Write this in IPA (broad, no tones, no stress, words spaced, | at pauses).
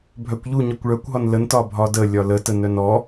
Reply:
bʱœkʷʎuɲɔkʷ ɭœkʷɦɒn ləntɒ bʱɒdə lʲɒlətə nœnɔ